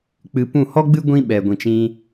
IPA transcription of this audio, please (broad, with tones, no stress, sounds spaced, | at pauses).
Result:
k͡p ɨ˧ p ũ˦˨ h ɔ˦ ɡ͡b ɨ˦ ɡʷ ĩ˦ ɓ ɛ˨ ɡʷ ĩ˨ t͡ʃ ĩ˧